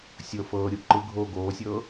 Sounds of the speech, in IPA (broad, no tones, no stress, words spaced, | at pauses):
sʲɤ fɤːɾʲu ǃɯɡʱoː ɡoːsʲɤː